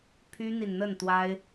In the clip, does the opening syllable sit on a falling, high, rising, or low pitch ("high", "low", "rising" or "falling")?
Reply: high